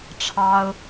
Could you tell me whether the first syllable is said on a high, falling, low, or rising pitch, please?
high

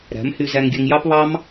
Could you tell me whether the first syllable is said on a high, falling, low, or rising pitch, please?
rising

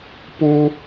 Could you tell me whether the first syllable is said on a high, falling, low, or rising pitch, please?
high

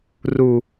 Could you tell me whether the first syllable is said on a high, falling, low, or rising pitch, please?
low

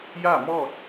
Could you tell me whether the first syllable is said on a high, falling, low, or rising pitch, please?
falling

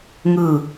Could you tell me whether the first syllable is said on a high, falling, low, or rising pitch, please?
low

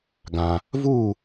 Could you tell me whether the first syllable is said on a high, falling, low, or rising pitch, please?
low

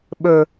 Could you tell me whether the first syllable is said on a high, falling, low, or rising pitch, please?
high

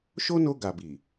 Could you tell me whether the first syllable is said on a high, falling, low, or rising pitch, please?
high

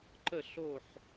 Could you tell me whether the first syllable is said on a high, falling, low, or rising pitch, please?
falling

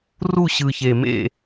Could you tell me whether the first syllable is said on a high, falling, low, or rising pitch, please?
falling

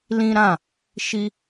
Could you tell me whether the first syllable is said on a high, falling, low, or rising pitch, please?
high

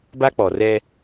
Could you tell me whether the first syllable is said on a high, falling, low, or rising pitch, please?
high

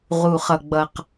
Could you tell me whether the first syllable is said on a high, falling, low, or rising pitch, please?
low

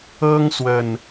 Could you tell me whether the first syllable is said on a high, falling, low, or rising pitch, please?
high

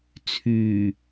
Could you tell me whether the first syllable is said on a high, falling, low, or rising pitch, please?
low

